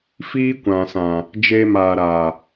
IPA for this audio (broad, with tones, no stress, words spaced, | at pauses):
fiː˦kʷã˨ sã˨ | d͡ʒe˧maː˨ɾaː˨